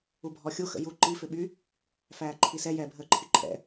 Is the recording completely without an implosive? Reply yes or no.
no